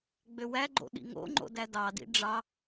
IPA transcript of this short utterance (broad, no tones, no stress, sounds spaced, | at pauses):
ɡ͡b ø w æ ɡ͡ǃ o̰ ɗ ḭ ŋ o̰ ŋ͡ǃ o̰ d æ d ɑ d ḭ ɖ͡ʐ ɑ